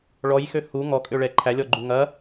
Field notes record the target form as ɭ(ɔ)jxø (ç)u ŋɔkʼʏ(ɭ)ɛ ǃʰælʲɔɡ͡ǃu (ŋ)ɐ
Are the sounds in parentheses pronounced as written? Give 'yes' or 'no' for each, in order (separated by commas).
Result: yes, no, yes, yes